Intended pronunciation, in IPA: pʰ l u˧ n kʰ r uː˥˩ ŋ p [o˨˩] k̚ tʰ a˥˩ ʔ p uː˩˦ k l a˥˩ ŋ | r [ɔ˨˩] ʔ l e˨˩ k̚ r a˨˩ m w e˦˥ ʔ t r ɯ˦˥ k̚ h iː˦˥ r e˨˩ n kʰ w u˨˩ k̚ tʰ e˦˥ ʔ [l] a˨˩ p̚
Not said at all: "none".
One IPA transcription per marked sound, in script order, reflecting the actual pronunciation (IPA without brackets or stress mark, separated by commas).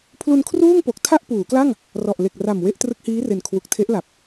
o˨˩, ɔ˨˩, l